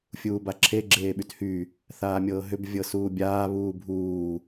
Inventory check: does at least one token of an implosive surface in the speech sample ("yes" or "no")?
yes